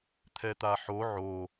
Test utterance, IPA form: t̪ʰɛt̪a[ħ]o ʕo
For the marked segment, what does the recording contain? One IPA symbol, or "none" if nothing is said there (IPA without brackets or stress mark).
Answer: ħ